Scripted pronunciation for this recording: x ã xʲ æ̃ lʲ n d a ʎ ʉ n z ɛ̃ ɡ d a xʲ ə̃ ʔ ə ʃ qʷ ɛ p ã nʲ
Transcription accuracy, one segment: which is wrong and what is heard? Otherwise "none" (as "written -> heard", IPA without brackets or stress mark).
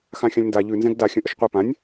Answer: æ̃ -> ã